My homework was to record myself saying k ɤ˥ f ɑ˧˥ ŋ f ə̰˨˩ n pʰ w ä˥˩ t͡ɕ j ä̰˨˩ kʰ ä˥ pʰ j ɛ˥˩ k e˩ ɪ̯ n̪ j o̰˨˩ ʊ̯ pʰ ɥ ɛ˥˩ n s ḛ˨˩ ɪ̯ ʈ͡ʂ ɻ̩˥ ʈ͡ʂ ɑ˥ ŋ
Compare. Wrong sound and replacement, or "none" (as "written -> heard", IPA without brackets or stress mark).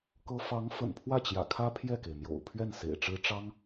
none